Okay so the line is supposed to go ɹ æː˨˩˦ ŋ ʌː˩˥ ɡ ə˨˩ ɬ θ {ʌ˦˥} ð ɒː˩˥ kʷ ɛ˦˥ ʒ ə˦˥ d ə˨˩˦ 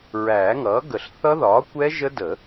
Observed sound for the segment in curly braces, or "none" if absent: ʌ˦˥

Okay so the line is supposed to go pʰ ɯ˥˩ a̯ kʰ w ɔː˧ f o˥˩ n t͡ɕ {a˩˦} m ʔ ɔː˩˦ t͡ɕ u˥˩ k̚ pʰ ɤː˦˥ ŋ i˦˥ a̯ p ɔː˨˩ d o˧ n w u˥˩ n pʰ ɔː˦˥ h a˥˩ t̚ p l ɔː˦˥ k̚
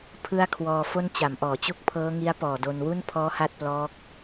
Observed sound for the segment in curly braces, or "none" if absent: a˩˦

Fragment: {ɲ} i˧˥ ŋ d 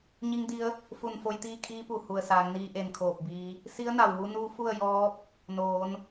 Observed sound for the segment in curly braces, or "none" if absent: ɲ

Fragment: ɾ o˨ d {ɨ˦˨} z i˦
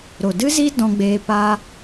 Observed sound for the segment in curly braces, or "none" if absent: ɨ˦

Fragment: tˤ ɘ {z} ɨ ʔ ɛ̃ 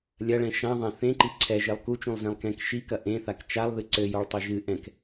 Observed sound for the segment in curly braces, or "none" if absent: ʒ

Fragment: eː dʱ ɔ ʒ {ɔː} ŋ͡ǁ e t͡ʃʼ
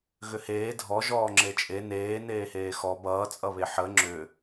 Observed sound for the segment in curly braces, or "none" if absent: ɔː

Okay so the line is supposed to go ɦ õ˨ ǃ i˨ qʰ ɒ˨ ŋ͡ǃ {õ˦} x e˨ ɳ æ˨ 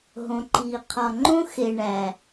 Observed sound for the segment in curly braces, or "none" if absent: õ˦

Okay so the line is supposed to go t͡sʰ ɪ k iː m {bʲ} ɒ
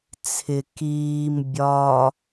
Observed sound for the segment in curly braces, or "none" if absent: bʲ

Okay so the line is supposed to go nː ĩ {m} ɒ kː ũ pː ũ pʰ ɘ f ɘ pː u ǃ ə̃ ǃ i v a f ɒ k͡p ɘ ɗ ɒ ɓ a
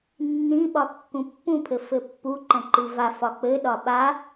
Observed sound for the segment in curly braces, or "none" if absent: ɓ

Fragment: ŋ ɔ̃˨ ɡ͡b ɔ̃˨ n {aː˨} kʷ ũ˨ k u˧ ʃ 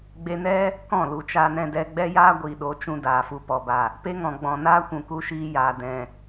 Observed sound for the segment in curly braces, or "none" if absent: aː˦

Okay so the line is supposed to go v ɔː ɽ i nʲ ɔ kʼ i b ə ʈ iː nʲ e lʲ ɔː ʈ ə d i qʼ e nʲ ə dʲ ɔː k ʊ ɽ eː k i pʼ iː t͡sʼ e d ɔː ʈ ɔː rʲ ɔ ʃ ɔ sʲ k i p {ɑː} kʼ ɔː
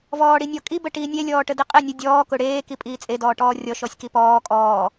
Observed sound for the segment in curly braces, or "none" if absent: ɔː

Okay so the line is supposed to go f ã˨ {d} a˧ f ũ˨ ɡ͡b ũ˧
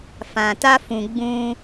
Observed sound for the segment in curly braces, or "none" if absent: t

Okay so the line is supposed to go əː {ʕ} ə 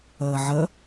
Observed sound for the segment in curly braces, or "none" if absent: ʕ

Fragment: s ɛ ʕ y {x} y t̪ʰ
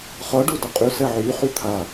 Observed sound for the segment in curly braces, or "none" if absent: χ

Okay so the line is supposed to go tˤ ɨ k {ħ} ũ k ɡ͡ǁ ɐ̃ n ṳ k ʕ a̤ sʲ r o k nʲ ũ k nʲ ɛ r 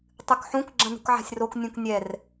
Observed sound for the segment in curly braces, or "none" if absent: ħ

